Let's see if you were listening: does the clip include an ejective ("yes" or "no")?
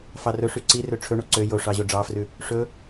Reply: no